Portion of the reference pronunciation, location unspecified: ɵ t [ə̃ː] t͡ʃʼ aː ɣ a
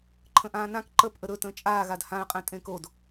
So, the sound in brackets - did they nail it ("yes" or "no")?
yes